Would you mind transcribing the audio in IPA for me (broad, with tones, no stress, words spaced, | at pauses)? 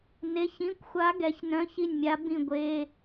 ne˧˥˧çĩ˧˥˧kʷxʷa˧˥ ɡɛ˩˥çnœ̃˧˥˧çi˥˩nʲmʲa˧˥ bĩ˥˩ɡʷe˧˥˧